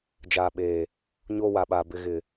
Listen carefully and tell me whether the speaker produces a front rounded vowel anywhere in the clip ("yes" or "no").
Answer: no